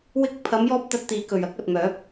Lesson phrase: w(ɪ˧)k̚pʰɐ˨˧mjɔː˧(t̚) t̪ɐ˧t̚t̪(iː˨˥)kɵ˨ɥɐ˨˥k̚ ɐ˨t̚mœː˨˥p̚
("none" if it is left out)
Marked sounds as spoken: ɪ˧, p̚, iː˨˥

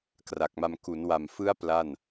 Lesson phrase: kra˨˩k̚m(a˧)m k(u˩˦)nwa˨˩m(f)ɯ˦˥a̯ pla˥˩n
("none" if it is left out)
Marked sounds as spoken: a˧, u˩˦, f

